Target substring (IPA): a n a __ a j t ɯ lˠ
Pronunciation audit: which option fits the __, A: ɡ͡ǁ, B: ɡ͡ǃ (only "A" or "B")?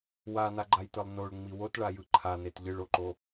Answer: B